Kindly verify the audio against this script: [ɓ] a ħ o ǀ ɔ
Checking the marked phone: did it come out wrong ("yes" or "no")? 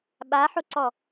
no